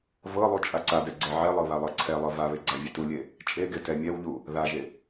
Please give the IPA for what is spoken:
vɤlˠu t͡ʃʼaǀadɛ ɡ͡ǀɛʕɛlˠɤ βalˠɤǀʰɛlˠɤ vaβe ɡ͡ǀavʲetulʲe | t͡ʃʼeɡe tɛmʲɛwʎu | ðaʒe

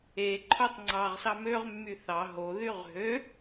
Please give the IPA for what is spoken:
e ǃʰotˤŋ͡ǀɑʁsɑ møʁmːy θɑ ɦoðyʁ ɦø

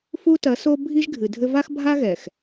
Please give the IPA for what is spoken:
fu˦tɐ˨˦so˦ bʱi˦ʒɡʱɨ˨dʱɘ˦ va˦xbʱa˦ɣɛ˨x

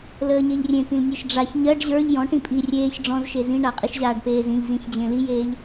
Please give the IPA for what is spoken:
ləːɲeʎrʲẽt̪ĩl nʲeʃɖ͡ʐaç ɲɜɖ ʑə˞ʎ jɔ̃ ʈĩpʼi rʲeːç ɖ͡ʐɔ̃zʃe zĩɳaqʼiʃʑaːɖ peːzĩʎzĩçd͡ʑẽ lijeːʎ

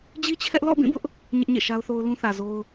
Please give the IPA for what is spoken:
d͡ʑi˦t͡ɕʰɛ˦ʔ lɔ̰˦˨bĩ˦˨bʊ˦ʔ | ɲɪ˦ʔɲḛ˦˨ʃa˦ʊ̯θo˦ʊ̯ lũ˦θä˨zo˦ʊ̯

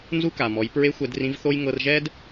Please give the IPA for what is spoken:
nzu˥ka˩mɔ˩˧j pɹe˧˥xʷɛ˩˧d rĩ˧˥vθo˥j ŋɤ˧rʒɛ˥d

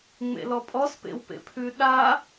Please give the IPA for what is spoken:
ŋ͡mḛlɔpʼɔs pḛwpḛpʰʉ ɗa

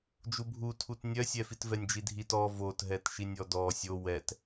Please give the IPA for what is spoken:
d͡ʒubʱu tʰutnʲœsʲɛ fitvɛnʲd͡ʒidʱit ɔ votɦɛtʃinʲ ɔdɔ sʲo wɛt

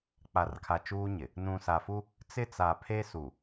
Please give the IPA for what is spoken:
k͡pa˨rkʰa˨ t͡ʃuː˦ɲɪ˨ | nũ˨sa˨fu˦ | t͡sɪ˦t͡sa˨pʰe˦ su˨

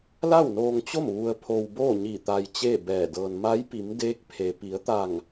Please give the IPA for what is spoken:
la˥˨wnoː˧ŋt͡ɕo˥˨m ʋu˧ə̯pʰo˧wboː˥˨ɲi˧˩ t̪a˧jt͡ɕe˥˨bɛː˧˩dɤː˧n ma˧˥jpi˩˧mdeː˧˥k̚pʰe˩ pi˩˧ə̯t̪a˧˩ŋ

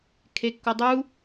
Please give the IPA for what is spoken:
kʰekːodˤu

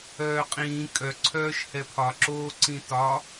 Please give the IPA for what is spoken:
œːqʼĩː kʼœǀʰœːʃhɛ pʰɒǁoːǀĩ tɒ

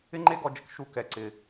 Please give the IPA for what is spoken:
ɪ˦ŋ͡ǃe˦ɡɔ˧d͡ʒɪ˧k ʃu˧kɛ˨ǀɪ˨

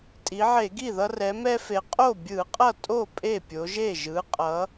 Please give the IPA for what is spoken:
tʼi˩˧ʕe˧˩˧ɡi˥˩ðʌ˦ rɛ˩˧mɛ˦fe˩˧ qʼo˥˩bʲɯ˧˩˧qʼʌ˥˩tʼo˥˩ pʼe˥˩pʲo˩˧ʒe˥˩ ʒɯ˩˧qʼʌ˩˧

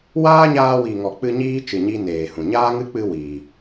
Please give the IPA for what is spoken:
waː˦ɲaː˧wi˨ ŋɔ˨k͡pɨ˧ ɲiː˦t͡ʃɨ˨ɲi˧ neː˨hũ˨ ɲaː˦ŋɨ˦k͡pɨ˧ wiː˨

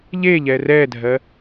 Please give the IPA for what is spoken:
ʎeʎɛ rɛdʱɜ

